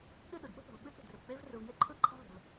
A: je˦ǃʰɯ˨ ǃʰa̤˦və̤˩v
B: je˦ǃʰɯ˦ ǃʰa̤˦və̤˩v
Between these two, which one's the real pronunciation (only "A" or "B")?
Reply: B